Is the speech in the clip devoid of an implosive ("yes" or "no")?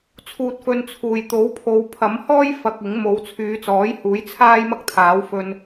yes